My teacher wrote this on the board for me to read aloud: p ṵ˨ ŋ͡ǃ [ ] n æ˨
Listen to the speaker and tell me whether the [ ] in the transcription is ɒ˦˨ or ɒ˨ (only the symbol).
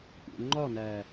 ɒ˦˨